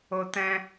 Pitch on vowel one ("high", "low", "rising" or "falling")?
high